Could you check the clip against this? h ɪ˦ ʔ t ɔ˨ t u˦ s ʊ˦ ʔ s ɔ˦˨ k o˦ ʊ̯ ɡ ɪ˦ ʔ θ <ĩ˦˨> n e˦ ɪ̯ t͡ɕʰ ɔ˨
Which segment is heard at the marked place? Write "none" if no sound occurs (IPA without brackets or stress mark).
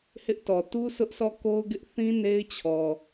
ĩ˦